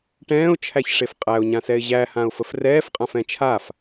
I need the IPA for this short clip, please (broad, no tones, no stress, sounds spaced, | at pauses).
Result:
ʈ ɛ̃ː ʊ̯ t͡ʃʰ æ ç ʂ e f qʼ æ ʊ̯ ɲ ã s ɛ ɪ̯ ʑ æ h ã ʊ̯ f ə f r ɛː f qʼ ã f ɛ̃ t͡ʃʰ a f